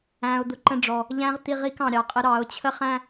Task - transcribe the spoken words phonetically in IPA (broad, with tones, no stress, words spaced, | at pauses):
æ̃˩ʊ̯ d̪ʊ˩˧ǃə̃˧ɖ͡ʐɔ˩ | ʎæ̃˧˥ʁt̪i˧ʁi˧k ɑ̃˩ɾʲɑ˩qʼɪ˧ɾɑ˩˧ʊ̯ t͡ɕʰə˥χæ̃˥